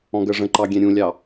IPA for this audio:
ɔ̃ɡɜʐə̃ ǃɑɡʲɛ̃ɾʲũlʲɑ

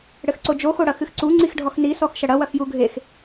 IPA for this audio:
ɽɘxǀod͡ʒo xoɽɐxɨxǀu ŋ͡ǀixɖʱɔxni sɔxʃɐɽɐ wɐxjuɡʱex

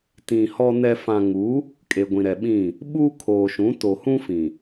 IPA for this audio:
tĩ˨ hɔ˨nɛ˨ fã˨ŋu˨˦ | kʼe˨ɡʷĩ˨ɾɛ˨ɓĩ˦˨ | ɓuː˦kʰoː˨ʃũ˨˦ to˨hũ˦fĩ˨

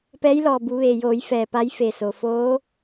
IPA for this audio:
pɛː˧˥jlɔː˧˩ bu˩˧ʋeː˩joː˩˧j fɛː˧˩pa˧˥jfe˧˩so˩ foː˧˥

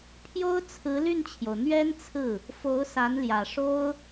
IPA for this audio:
pʰjo˥ʊ̯ t͡sʰɹ̩˧˥ ly˥˩nt͡ɕʰjo˩ʊ̯ n̪ɥɛ˥nt͡sʰɹ̩˥˩ | fo˧˥ʊ̯sa˧˥nljä˨˩ ʂo˥ʊ̯

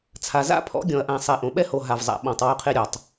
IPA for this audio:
t͡sʰa˨za̰˦pʰɔ̰˨˦ɡʲɔ̃˨ɐ̯ ʔã˨sˤe˨ ʔõ˨ɓɛ˦ho˨ ɦa˨vzˤa̰˨ ɓɔ̃˨tˤwo˦qʰe˦ɾʲɔ˨tˤ

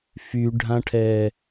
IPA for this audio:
fyɖʱãʈʰɛ

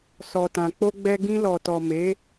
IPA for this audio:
sɔ˨tã˨k͡po˧ɡ͡bɛ˧ ɡĩ˧lɔ˨tɔ˨ me˨˦

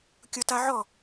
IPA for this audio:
kʲʊta ʕɔ

